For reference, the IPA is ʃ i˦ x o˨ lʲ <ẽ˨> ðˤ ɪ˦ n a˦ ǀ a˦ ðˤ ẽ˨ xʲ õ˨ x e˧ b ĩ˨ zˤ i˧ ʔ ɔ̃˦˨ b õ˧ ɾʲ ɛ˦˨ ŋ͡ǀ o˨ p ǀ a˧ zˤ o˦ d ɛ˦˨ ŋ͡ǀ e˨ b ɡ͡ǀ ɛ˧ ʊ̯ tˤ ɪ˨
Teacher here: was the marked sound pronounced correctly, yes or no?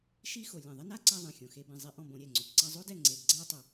no